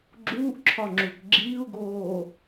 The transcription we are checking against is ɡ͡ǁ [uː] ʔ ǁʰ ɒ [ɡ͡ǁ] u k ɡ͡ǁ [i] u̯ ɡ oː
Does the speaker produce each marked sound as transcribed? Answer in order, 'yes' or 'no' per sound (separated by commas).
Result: yes, no, no